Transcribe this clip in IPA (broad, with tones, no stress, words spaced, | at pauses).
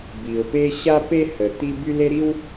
bi˨ʊ̯pe˦ ɕa˦pe˦hə˨ t̪i˦by˦le˦ɾi˦w